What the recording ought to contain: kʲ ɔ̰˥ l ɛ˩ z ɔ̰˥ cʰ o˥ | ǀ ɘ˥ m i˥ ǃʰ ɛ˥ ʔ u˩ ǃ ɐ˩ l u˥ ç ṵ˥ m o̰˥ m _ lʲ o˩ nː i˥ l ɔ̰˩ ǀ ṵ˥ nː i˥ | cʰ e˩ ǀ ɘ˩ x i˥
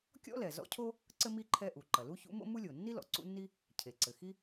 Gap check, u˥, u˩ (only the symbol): u˥